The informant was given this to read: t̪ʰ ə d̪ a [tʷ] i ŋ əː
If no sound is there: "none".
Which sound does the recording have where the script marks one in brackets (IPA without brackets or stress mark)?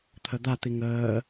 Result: t̪